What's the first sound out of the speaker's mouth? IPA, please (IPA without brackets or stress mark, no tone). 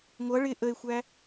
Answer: ŋʷ